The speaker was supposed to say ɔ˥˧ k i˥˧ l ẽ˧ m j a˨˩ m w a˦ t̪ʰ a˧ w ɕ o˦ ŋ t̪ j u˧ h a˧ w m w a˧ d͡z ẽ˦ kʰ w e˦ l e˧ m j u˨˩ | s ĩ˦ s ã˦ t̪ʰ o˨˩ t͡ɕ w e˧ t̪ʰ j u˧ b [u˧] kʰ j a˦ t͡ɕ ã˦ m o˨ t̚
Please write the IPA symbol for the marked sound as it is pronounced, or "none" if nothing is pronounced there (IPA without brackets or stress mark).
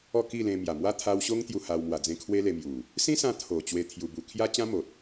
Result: u˧